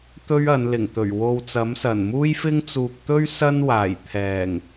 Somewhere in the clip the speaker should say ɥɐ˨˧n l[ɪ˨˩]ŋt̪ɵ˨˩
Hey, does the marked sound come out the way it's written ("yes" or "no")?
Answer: yes